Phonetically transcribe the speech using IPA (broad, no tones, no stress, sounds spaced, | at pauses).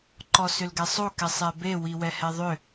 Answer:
ǃ ɔ s ʏ l ɡ ɛ sˤ o k ɛ sˤ ɛ b e w i w ɛ h ɛ ðˤ ʏ